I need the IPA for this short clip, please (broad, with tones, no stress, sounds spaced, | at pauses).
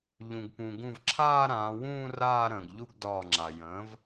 ʎ ũ˩ ɡ p ũ˩ ɡ ũ˧˩ v ǁʰ aː˥˧ ɾ ãː˩˧ w ũː˥˧ r aː˥˧ ɾ ə̃ː˩ ɡ ʎ u˥˧ ɡ d ɒː˧˩ ŋ͡ǁ a˩ j ə̃ː˩˥ v